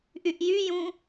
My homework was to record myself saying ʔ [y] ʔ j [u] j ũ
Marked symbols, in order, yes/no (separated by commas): yes, no